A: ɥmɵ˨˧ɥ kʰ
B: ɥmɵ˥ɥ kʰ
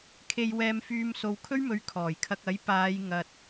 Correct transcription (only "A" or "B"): A